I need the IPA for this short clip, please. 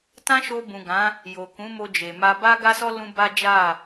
t ã˦ ʃ o˧ b ũ˨ ɡ ã˨˦ | j o˨ k ũ˨˦ m o˧ d͡ʒ e˨ m a˧ b a˧ ɡ a˧ s ɔ˧ l ũ˦ b a˦ d͡ʒ a˦˨

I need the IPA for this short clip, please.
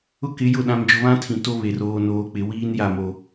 ʊ˦ k ɪ˨˦ j ʊ˦˨ ɗ ã˨ m d͡ʒ ʊ˨ β ã˦ tʰ ĩ˨ t o˦ β e˨ r oː˨ n oː˨ k͡p ɪ˨ w iː˦ n j a˦˨ m o˨

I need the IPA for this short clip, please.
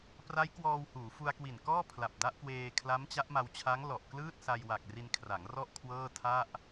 p r a˦˥ j k w ɔː˧ w h uː˩˦ f u˧ a̯ k w i˨˩ n k ɔː˥˩ pʰ l a˨˩ p̚ d a˦˥ ʔ k w eː˧ kʰ l a˦˥ m t͡ɕ a˦˥ ʔ m a˧ w t͡ɕʰ a˦˥ ŋ l ɔ˨˩ ʔ k l ɯː˥˩ t̚ s a˧ j w a˨˩ k̚ r i˧ n kʰ r a˩˦ ŋ r ɔ˥˩ ʔ kʰ w ɤː˥˩ tʰ a˥˩ ʔ

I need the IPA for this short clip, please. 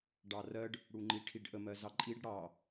ɖ ɑ r ɜ ɖ | ɽ u ŋ͡ǃ i ʈʰ i ɖ ʔ ə m ɜ z ɑ ǃʼ i ɖ ɽ ɑ

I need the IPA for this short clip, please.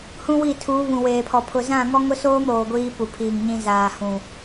h ũ˦ w i˦˨ tʰ uː˨˦ β ũ˨ w eː˨ pʰ ɔ˨ pʰ ʊ˨ z ã˦˨ ŋ ɔ˦ ŋ ʊ˦ s oː˦ m ɾ oː˨ ɡʷ iː˦ p u˨ pʰ iː˨ ŋ ɲ ĩ˦ z aː˨ h ũ˨

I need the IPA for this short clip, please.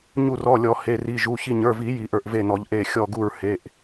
ɲ u˧˩ r ɔ˩˧˩ lʲ ɔ˨˩˦ h e˩˧˩ r i˩˧˩ ʒ u˩˧˩ ç i˧˩ ɲ ə˞˩˧˩ v i˨˩˦ j i˨˩˦ ʔ ə˞˧˩ ʔ v e˧˩ n ɔ˨˩˦ ʎ ʔ e˧˩ xʲ ɔ˧˩ ɡ u˧˩ ɹ h e˩˧˩ ʔ

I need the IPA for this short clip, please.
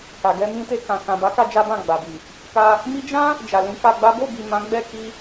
k a˨ ɡ ɛ˧ m ĩ˧ t e˧ k ã˨ k ã˨ b a˨˦ k a˧ d͡ʒ a˦ b ã˦˨ ɡ͡b a˨ b i˨ | k a˧ | m i˦ d͡ʒ ã˦ | d͡ʒ a˨ l ĩ˨˦ k a˧ ɡ͡b a˦ b o˦˨ b i˨ m ã˨˦ ɡ͡b ɛ˦˨ k i˧

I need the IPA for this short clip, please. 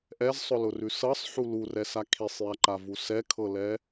ʔ ɛ z sˤ ʊ l ʊ r ʉ s ɤ sˤ ħ u l u r ɛ s a kʰ i sˤ j a ǃ a v u s ɛ kʰ ɤ l ɛ

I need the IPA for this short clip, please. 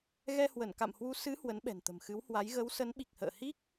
ɣ ɛ˧ h w ə˧˩ n k a̰˧˨ m h w u˨˦ s ɨ˨˦ h w ə˨˦ n ɓ ɛ̤˨˩ n t̪ ə̤˨˩ m x ɨ˨˦ w h w a˨˦ j ɣ ə˨˦ w s ə˨˦ n ɓ i˨˩ k̚ h ə̰ː˧˨ h i˦˥ k̚

